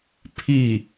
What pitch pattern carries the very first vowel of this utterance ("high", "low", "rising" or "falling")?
falling